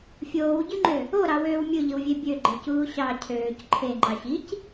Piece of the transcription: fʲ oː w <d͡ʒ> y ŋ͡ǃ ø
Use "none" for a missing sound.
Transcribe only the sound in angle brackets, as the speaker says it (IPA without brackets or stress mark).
ɟ